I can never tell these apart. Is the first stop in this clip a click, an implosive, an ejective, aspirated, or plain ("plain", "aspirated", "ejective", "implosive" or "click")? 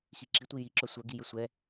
click